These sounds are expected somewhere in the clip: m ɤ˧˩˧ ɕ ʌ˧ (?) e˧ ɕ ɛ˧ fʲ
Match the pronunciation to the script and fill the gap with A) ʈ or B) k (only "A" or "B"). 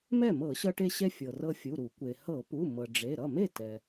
A